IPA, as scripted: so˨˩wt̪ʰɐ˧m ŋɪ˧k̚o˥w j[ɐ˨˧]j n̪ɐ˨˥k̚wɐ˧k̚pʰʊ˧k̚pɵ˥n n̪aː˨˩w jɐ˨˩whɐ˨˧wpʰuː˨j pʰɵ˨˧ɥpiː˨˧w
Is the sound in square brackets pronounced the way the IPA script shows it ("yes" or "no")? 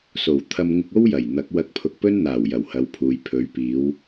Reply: no